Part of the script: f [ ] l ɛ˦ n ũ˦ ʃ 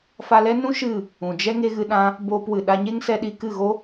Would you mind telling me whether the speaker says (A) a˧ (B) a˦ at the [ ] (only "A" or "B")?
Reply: A